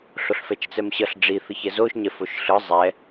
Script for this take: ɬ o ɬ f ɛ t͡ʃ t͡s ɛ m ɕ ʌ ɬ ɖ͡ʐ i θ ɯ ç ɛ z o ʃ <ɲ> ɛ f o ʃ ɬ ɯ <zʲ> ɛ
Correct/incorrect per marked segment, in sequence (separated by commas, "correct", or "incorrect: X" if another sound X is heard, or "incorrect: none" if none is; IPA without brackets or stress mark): correct, incorrect: zˤ